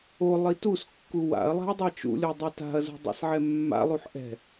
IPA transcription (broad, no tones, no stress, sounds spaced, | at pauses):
o lˠ i t u s kː u w a̰ ɐ̯ lˠ a̤ ɐ̯ dˤ a t͡ʃ ṵ lʲ o dˤ u t a̤ ɐ̯ z ṳ dˤ ḭ s ʕ ɛ mː a̰ lˠ u ħ ʔ ɛ̤